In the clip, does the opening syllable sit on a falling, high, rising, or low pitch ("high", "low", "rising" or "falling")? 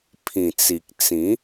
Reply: low